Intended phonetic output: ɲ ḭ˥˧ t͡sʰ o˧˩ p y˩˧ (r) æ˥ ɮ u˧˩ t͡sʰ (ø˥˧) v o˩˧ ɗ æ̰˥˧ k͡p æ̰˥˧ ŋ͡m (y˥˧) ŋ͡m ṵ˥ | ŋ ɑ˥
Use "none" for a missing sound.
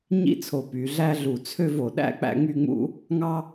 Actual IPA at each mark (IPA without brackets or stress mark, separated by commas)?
ɮ, ø˥˧, y˥˧